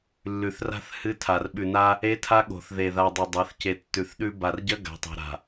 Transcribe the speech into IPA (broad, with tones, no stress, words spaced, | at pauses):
lːʉ˨θra̤˦θ hɨ˦tʰa˨r ɓʉ˨na˦ | e˦tʰa˦ ɠo̤˨θðe˨ ða˨ dˤɵ˨dˤa˨˦θce˨ tːʉ˨θɗʉ˦ ba˨rɟɐ˦ ɡa̤˨˦tˤa̤˨ɾa̤˨